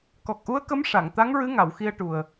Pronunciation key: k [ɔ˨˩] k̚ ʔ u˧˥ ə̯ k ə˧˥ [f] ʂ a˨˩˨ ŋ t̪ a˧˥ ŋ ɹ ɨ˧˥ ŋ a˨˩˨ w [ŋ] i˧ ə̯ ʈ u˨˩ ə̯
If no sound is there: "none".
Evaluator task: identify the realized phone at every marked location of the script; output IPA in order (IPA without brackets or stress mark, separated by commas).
ɔ˨˩, m, x